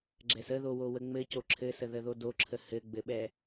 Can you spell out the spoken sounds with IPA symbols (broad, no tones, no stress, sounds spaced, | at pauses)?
ɡ͡ǁ ɛ s ə ð o w o w ə ŋ͡m ɘ c o ǁʰ ɘ s ə ð ə ð o d o ǁʰ ə h ɘ ɡ͡b ɘ ɓ ɛ